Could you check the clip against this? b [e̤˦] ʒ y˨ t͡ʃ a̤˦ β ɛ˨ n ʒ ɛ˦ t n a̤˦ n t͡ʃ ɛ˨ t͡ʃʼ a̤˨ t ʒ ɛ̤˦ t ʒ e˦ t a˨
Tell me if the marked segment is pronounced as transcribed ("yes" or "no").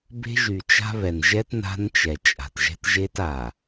yes